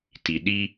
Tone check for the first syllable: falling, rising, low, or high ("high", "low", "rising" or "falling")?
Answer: low